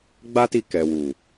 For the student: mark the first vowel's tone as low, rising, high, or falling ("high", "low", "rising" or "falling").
high